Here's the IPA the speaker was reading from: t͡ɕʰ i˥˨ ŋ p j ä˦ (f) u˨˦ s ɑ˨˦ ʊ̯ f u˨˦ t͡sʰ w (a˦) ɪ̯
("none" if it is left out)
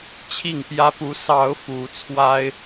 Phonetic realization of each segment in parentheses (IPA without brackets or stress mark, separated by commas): p, a˦